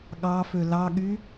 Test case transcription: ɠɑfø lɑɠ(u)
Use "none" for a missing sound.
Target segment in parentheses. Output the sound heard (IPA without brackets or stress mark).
y